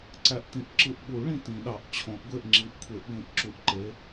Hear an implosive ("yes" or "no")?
yes